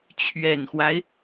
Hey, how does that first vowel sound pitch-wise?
low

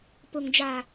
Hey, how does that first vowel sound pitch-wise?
low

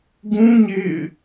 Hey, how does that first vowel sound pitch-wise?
high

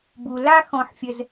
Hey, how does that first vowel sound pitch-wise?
low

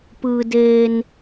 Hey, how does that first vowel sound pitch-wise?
low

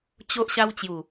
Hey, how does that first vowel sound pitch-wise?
high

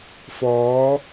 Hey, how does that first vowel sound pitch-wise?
rising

